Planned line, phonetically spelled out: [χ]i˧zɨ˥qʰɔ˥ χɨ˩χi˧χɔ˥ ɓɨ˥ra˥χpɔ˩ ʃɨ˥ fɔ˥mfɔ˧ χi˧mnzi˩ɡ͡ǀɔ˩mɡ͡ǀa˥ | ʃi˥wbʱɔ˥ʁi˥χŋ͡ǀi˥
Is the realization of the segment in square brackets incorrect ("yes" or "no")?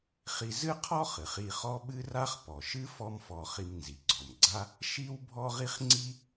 no